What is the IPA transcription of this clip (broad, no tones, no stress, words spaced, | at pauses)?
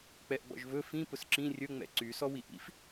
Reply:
k͡pɛʔɡ͡bɔ̰ʒvɵ fĩ pʊsǁĩ rʲɵ ŋ͡mɛ̰ǀy sɔwiʔḭf